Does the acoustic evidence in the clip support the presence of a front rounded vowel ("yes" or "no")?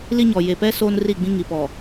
no